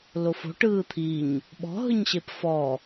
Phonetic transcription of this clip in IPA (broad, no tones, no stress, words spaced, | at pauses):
lofo̤ ʈɯːt̪ʰiɲ | ɓɔ̤ ɦɯɲɕepfɔ